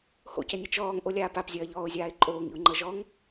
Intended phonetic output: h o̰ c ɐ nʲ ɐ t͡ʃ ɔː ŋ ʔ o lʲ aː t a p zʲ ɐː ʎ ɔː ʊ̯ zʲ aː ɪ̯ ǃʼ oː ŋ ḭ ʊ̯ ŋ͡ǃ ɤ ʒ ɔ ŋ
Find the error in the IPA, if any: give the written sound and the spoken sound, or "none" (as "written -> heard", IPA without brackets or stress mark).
t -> p